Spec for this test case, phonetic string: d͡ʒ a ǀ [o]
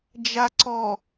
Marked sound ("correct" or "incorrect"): incorrect